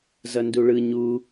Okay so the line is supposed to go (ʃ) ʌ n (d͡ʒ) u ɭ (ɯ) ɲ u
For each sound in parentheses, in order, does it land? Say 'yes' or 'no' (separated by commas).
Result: no, no, yes